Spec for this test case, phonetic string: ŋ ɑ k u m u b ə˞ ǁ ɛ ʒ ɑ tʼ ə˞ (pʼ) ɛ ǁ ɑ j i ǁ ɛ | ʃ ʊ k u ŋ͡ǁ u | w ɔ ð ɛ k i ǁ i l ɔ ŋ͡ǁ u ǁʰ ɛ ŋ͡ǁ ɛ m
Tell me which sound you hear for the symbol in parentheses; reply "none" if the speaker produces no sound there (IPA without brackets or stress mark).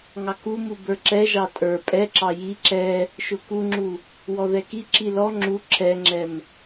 pʼ